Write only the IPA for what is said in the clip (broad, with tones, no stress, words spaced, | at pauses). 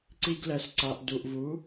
ǀi˧ɡlɛ˨sǀa˨ʔ du˨ʔvu˨˦